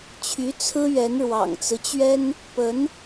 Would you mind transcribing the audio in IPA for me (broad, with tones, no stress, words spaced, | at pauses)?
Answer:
t͡ɕʰy˧˥t͡sʰɹ̩˥ ɥɛ˧˥nɻwɑ̰˨˩ŋt͡sɹ̩˦t͡ɕɥɛ˥n | pə˧˥n